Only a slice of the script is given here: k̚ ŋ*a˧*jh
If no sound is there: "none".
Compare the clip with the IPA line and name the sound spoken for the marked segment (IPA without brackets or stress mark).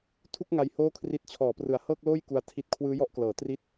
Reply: a˦˥